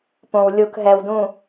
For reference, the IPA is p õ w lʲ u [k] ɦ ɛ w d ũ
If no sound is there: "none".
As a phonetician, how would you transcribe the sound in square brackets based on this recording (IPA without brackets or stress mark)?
k